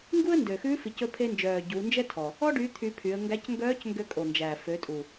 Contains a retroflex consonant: yes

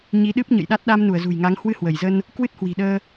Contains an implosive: yes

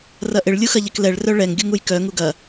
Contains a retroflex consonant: yes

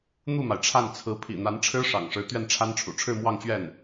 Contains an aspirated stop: yes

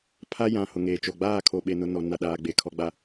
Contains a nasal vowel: yes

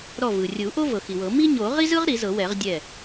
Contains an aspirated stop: no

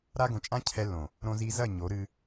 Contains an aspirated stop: yes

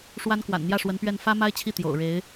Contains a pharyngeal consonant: no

